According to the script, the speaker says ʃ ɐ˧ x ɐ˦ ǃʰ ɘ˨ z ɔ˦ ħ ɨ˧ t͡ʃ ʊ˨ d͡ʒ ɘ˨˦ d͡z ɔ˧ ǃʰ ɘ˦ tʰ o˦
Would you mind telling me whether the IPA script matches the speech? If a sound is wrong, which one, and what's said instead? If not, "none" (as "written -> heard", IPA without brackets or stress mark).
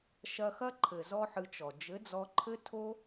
ʊ˨ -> ɔ˨